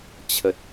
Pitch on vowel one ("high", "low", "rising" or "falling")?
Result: low